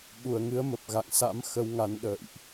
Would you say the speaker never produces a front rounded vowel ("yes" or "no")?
yes